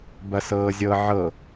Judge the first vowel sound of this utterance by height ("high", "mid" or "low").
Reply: low